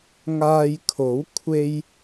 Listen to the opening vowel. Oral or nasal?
oral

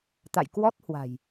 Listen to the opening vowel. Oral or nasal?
oral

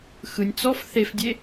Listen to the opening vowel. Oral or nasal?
oral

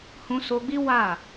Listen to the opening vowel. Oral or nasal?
nasal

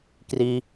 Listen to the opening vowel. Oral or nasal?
oral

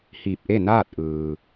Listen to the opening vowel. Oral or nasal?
oral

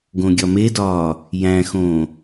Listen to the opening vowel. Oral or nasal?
nasal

